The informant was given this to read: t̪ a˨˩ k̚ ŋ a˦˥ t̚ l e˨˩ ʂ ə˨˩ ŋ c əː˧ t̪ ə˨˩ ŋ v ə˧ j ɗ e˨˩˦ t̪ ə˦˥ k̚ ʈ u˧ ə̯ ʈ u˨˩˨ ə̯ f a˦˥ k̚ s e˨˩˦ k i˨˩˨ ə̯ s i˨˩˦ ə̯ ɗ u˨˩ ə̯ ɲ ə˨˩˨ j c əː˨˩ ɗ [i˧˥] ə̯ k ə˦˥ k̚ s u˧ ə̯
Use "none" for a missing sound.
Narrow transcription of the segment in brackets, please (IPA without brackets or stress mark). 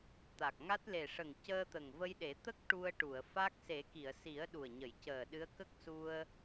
ɨ˧˥